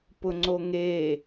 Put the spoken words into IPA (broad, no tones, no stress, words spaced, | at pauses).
pʊŋ͡ǀoŋe